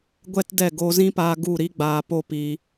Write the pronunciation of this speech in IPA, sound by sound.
ɡʷ ɛ˦ t d ɛ˦˨ ɡ oː˧ z ĩ˦ p aː˧ ɡ u˦˨ ɾ i˦ ɡ͡b aː˧ p o˦ p i˧

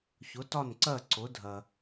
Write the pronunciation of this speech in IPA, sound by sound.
ç ʊ˩˥ t ɒ˥˩ n ǀ ɜ˥˩ ǀ ʊ˩˥ dʱ ɜ˩

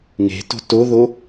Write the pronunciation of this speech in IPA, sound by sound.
ŋ e̤ t o̤ t o ð o

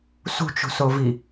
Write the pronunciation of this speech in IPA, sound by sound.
s ṳ t͡ʃ ṳ s o v i

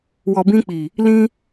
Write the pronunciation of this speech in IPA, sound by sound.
w ɔ˨ b ĩ˧ k͡p i˨ | l ĩ˧

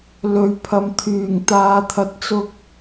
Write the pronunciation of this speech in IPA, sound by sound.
l ɵ˨ ɥ pʰ ɐ˨ m t̪ʰ yː˨˩ ŋ t̪ aː˨ t̪ʰ ɐ˨˥ t̚ t͡s ʊ˧ k̚

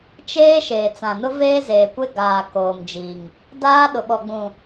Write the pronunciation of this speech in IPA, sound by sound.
t͡ʃ eː˦ ʃ eː˨ t͡s ã˨ n ʊ˦ v eː˦ z eː˨ kʷ e˦ ɡ aː˨ k oː˨ m d͡ʒ i˨ ŋ | d aː˦ ɗ ʊ˨ ɓ ɔ˨ ɡ͡b ũ˨

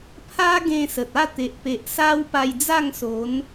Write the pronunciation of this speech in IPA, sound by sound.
pʰ a˦ ɡ ẽ˧ s ə˨ t̚ a˥˧ t̪ e˨ ʔ p e˨ ʔ s a˦ w p a˧ j d͡z a˥˧ ŋ s o˨˦ n

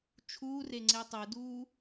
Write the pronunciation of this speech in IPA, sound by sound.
t͡ʃʰ uː r e ŋ͡ǀ e tˤ ɯ d uː

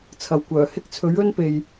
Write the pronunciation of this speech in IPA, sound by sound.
t͡sʰ ɐ˨ w kʷ œː˨˩ h ɪ˥ k̚ t͡sʰ ɵ˨˥ ɥ ɵ˥ n p e˨ j

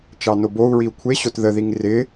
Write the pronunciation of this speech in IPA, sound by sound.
t͡ʃ ɑ n o b o u̯ ɹ i u̯ kʷʰ e ɕ o t ð ə ð i ŋ r ɪ

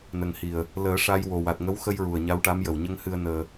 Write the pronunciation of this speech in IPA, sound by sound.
n ə˨˩ ŋ h i˨˩ ə̯ | l əː˨˩˦ ʂ a˧ j w o˨˩ w a˨˩ t̚ ŋ ə˧˥ w x ə˧ j ɹ u˨˩ ə̯ ɲ a˧˥ w ʈ a˧˥ m j ə˨˩ w ɲ ə˧ ŋ h ɨ˧ ə̯ n əː˧

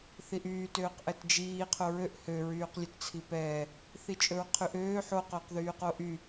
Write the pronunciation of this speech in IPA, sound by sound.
θ i ʔ yː t øː q ʔ ɛ t d͡ʒ iː qʰ o ɹ ø ʔ h ø ɹ yː q lʲ ɵ t t͡sʰ i p ɛː | θ i t͡ʃʼ ɵ ɹ qʰ y ʔ øː ħ o q ɵː q ð yː q o ʔ y

